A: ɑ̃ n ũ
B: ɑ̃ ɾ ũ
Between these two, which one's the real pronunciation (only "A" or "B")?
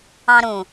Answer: B